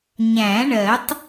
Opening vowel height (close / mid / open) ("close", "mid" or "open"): open